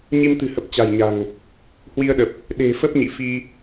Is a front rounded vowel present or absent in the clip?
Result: absent